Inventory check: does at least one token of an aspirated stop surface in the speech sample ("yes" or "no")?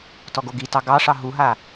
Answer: no